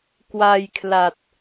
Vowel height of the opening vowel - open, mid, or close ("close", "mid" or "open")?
open